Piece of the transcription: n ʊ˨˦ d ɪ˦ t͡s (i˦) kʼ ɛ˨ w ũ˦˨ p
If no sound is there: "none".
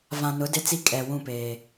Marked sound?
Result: i˦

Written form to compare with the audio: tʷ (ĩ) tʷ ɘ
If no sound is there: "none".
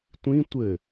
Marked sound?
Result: ĩ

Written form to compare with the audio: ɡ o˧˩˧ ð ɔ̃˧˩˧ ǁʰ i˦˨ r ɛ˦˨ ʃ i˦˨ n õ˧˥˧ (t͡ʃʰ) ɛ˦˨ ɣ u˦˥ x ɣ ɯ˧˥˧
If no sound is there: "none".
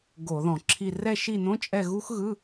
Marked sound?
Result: t͡ʃʼ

